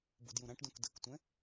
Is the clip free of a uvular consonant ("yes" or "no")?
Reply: yes